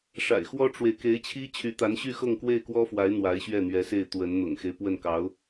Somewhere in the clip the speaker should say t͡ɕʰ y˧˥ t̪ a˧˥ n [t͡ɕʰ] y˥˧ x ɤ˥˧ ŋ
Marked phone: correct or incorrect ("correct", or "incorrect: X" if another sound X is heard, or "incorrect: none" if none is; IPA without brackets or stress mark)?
incorrect: ɕ